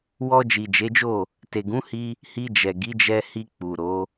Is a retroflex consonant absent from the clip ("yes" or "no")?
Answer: yes